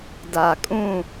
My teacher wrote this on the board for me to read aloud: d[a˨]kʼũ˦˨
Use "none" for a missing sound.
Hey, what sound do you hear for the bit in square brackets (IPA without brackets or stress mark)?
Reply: a˨